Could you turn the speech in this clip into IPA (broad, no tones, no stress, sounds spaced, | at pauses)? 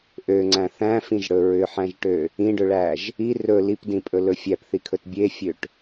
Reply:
ʔ ø ŋ͡ǀ æ̃ θ æ̃ f ĩ ʒ ɽ ɵ ɹ ʏ ħ æ̃ ʒ ʈ ø | ĩ ɖ ɵ ɭ æ ʒ | i r ɵ l i p d ĩ pʼ ɵ l ɵ fʲ æ p θ i kʰ ɵ t bʲ e fʲ ø ʈ